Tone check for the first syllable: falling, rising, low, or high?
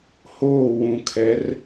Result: falling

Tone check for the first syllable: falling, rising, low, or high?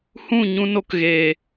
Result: falling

